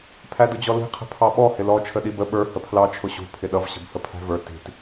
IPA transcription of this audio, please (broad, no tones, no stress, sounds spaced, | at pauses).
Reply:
pʰ æ d ʊ d͡ʑ ɔ l i̤ qʰ ə̤ pʰ ɑ ɓ ɔ h ɪ l ɔ t͡ʃʰ ə ɗ i b ə ɓ ə˞ h ə pʰ l ɑ t͡ʃʰ ʊ ɕ ṳ pʰ ɪ ɗ ʌ v ɕ ə̤ b h ə pʰ æ̤ v ə˞ t i̤ t